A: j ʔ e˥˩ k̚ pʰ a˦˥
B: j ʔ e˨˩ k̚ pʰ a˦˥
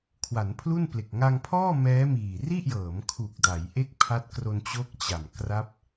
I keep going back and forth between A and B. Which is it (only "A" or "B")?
A